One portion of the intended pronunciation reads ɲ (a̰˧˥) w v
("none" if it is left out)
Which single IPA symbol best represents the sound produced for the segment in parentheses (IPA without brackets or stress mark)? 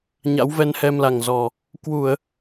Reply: a̰˧˥